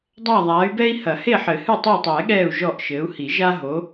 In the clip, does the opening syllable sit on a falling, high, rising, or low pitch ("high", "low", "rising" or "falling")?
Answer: falling